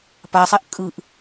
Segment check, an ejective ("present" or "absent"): present